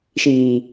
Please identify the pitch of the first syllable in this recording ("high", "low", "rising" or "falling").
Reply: low